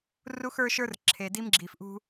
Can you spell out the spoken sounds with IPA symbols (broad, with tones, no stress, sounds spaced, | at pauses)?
r u˦ x ə˞˦ ʃ ə˞˦ r ǁʰ e˨ d i˦ m ɡ͡ǁ i˨ f ʔ ṳ˦